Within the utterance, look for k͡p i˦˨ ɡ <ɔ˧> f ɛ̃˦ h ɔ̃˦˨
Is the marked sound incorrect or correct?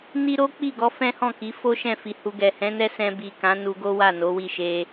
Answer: correct